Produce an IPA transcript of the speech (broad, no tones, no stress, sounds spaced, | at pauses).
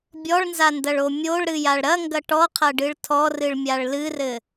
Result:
bʲ ɔ ɭ n z a n d ɐ ɭ o mʲ o ɭ ɾ ɨ j a ɭ ɾ ɐ ŋ ɡ ɐ ʈ ɔ qʰ ɐ ɖ ɨ ɭ tʰ ɔ r ɨ ɭ mʲ a ɭ l ɨ r ɘ